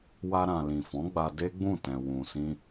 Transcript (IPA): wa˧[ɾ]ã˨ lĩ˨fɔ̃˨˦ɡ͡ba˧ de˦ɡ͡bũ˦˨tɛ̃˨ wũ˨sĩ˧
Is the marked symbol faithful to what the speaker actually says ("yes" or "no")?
yes